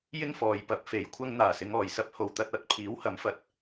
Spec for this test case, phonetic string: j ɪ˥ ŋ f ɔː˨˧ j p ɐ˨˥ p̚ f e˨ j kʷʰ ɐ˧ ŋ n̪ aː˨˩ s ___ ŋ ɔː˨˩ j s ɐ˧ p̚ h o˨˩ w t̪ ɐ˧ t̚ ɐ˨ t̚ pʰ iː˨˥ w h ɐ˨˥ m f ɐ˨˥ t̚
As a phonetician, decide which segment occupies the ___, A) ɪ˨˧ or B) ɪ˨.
A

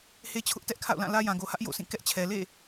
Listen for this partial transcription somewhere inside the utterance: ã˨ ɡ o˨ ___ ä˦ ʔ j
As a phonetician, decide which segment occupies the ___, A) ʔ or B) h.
B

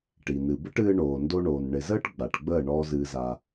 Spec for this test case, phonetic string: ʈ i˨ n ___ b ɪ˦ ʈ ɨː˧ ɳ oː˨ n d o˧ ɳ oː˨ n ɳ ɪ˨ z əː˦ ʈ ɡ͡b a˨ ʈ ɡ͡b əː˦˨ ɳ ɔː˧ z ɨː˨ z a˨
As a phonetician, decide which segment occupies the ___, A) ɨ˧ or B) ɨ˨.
B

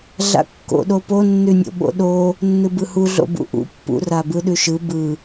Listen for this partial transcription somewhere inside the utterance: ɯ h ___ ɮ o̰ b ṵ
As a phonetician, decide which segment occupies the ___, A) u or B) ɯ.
A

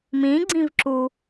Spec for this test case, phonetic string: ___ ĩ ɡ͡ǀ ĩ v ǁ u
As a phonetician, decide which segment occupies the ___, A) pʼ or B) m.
B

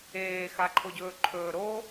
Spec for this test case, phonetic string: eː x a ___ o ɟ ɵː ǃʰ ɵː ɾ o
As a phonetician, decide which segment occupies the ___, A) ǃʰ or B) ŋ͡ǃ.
A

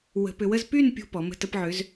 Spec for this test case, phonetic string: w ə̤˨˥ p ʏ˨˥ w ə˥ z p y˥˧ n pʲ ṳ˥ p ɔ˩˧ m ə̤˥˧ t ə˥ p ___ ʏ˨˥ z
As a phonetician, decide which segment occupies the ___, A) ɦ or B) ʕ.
B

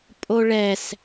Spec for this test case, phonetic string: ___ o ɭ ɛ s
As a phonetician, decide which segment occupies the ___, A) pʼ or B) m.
A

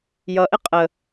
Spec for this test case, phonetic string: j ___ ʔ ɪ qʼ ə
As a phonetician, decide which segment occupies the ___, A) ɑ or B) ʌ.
B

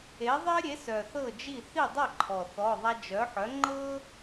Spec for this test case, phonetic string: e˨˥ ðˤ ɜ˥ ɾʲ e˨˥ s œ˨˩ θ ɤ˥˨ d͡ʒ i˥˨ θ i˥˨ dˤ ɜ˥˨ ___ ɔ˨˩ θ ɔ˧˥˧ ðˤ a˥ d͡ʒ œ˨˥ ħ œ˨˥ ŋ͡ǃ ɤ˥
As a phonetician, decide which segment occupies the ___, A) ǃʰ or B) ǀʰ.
A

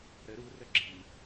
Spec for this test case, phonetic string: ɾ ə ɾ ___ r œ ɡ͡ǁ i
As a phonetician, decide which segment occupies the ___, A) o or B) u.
B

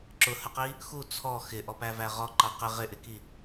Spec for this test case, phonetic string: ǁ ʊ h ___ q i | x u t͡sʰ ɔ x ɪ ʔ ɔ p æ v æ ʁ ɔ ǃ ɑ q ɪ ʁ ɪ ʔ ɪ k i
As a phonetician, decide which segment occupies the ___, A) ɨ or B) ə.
B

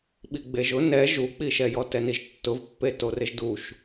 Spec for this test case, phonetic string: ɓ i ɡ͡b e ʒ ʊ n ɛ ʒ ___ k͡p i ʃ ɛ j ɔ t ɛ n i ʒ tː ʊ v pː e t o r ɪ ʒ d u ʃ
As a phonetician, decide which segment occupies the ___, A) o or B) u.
B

